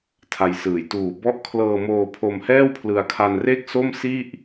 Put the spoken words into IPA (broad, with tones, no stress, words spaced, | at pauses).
tʰa˧jsɯː˨˩j tuː˨˩bɔ˦˥ʔkʰlɤː˧moː˧ pʰo˧mhɛː˥˩wpʰlɯ˧a̯ kʰa˧nre˥˩k̚so˥˩m si˥˩ʔ